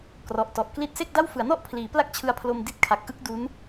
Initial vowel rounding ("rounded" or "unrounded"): rounded